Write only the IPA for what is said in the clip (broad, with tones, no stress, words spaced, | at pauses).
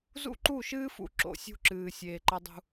zṵ˦ǃu˦˨ʃɨː˦fṵ˨ ǁo̰˨sʲṳ˦ǁɨː˨ sʲeː˨ǃɐ˦dˤṳ˦